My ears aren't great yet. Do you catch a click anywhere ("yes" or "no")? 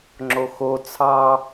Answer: yes